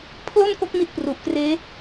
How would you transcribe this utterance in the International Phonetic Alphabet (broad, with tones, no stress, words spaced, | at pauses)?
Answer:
pʰlo˥˩nko˦˥k̚ mi˦˥t̚pru˨˩ʔkreː˦˥